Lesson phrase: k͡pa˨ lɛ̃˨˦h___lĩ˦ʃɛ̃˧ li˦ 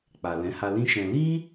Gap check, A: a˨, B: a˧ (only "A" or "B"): B